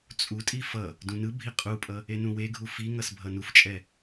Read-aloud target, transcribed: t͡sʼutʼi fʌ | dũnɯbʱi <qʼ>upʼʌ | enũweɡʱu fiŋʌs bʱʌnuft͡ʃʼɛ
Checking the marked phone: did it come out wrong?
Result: no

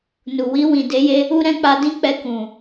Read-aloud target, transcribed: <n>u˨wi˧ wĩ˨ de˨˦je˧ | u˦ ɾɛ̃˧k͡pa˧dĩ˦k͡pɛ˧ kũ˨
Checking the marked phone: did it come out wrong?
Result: no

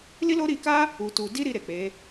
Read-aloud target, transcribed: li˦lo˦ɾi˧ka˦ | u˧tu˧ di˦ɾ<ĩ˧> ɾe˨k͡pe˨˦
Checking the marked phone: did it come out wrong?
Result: yes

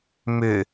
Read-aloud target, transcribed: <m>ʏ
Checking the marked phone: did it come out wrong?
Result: no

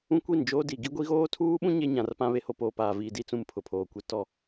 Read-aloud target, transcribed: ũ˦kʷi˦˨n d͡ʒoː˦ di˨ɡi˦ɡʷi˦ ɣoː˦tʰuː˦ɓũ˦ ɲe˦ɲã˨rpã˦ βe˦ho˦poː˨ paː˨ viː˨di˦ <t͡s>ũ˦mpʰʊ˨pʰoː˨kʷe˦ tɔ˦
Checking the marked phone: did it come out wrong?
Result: no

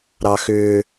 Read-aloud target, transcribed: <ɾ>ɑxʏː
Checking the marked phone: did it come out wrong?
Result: no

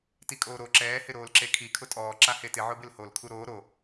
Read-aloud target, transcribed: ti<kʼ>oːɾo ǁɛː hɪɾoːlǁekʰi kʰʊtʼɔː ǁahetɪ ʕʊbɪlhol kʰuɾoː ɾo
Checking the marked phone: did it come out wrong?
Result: no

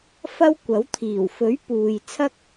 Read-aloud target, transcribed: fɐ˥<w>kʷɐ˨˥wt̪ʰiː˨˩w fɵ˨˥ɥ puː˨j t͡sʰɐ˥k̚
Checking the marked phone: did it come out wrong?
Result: no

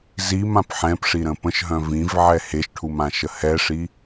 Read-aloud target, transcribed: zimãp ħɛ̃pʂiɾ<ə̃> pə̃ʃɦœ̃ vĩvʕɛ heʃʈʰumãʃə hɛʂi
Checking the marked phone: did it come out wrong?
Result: no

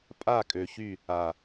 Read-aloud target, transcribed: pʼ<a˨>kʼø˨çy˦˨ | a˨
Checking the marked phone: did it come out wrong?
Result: yes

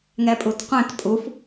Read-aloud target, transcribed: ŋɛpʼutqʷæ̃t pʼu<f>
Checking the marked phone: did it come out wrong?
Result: no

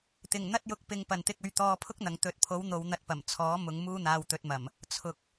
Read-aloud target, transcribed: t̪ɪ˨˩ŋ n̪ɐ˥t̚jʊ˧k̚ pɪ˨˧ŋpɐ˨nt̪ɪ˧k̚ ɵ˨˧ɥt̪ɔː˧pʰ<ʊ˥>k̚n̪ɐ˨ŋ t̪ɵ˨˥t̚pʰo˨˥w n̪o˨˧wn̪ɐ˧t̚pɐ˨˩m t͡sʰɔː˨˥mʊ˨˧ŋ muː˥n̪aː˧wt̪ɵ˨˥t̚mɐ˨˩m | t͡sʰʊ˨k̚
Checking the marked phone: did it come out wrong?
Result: no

